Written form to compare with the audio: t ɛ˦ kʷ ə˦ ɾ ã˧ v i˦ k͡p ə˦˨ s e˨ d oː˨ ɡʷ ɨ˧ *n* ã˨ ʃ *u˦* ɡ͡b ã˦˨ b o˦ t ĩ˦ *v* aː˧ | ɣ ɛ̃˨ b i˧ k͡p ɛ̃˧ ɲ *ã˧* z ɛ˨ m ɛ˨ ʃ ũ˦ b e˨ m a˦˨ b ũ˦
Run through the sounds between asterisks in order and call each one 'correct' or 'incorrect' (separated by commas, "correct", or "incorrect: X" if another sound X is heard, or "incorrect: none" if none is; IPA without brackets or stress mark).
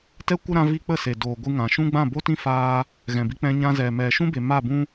incorrect: ŋ, incorrect: ũ˦, incorrect: f, correct